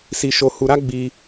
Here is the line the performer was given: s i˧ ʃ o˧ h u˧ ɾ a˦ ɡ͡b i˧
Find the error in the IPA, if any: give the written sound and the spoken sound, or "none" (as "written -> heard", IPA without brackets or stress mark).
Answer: none